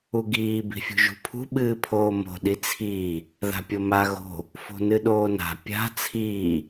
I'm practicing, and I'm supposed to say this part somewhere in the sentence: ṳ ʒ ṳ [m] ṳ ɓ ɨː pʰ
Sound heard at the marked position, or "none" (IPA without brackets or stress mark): pʰ